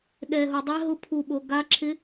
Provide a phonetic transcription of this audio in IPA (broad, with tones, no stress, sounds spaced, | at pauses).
ɗ ɛ˧ ɦ o˧ dˤ ɛ˦˥ ɦ ʊ˦˥ pʰ u˧ ɓ o˧ ɡ a˦˥ ǁʰ ɪ˦˥